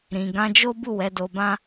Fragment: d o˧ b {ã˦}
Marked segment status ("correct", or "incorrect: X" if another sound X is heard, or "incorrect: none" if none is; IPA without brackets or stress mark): correct